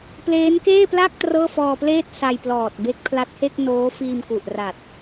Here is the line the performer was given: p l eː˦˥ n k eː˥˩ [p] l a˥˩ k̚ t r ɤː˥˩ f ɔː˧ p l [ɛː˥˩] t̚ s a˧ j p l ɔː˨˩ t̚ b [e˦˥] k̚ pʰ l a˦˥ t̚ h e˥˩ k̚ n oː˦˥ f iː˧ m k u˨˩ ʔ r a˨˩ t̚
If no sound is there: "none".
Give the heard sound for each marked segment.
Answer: p, eː˥˩, e˦˥

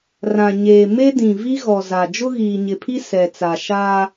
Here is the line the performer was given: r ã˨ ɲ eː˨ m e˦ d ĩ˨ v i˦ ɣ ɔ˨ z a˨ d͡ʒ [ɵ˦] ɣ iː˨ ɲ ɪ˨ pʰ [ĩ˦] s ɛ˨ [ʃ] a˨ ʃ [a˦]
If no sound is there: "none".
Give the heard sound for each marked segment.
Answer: ʊ˦, i˦, t͡s, a˦

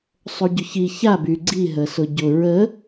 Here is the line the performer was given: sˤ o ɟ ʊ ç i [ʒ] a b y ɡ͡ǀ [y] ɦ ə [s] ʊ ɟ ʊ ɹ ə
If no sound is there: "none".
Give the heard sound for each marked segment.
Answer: ç, i, s

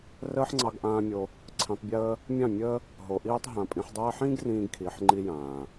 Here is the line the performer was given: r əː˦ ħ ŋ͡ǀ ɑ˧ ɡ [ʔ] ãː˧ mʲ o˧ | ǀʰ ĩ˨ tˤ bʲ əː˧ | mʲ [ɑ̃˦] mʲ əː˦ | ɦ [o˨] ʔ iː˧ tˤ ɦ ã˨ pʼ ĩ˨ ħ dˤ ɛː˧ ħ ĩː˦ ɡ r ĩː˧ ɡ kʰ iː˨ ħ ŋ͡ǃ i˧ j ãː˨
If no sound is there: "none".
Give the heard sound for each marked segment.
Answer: ʔ, ɑ̃˦˨, o˨

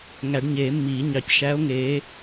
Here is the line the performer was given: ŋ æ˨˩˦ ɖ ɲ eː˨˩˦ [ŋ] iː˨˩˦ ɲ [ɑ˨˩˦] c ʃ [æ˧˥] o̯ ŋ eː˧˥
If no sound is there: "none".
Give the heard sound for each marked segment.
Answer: mː, ɑ˨˩˦, æː˧˥

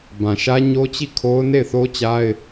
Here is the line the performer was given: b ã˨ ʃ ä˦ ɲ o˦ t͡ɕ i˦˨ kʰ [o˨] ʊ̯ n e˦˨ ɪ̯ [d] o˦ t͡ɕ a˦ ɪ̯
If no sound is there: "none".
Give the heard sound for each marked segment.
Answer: o˦, θ

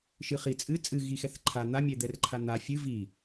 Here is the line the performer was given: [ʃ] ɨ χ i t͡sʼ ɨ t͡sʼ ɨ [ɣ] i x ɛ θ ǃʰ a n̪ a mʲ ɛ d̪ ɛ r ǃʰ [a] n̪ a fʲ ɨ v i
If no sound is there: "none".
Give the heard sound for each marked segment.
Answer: ʃ, ɣ, a

